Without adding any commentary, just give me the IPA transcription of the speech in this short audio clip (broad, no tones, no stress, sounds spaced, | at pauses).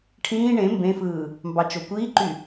ʈʰ ĩː ɳ ẽ m b ẽ f ɯː | m b ɑ t͡ʃ o kʷ iː ǃ y